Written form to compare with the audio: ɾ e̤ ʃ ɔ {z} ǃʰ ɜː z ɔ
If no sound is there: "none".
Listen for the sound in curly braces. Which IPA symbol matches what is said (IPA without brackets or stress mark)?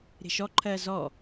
none